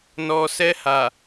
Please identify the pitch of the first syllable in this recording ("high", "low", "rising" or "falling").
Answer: low